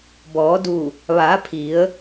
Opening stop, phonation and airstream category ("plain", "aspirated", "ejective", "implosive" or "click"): plain